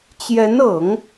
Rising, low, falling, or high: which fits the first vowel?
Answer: rising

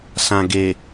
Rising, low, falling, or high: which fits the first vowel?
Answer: low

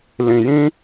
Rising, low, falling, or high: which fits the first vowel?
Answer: low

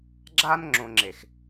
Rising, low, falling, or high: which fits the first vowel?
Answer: high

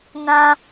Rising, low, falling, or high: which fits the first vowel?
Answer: high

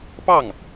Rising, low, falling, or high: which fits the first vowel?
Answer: falling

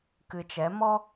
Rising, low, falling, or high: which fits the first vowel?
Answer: low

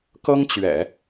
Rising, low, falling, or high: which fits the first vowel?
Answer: high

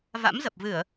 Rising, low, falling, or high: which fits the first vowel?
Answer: rising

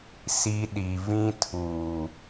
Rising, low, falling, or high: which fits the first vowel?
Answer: high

